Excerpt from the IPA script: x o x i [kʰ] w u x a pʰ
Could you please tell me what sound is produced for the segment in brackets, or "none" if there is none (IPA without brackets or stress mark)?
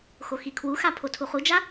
kʰ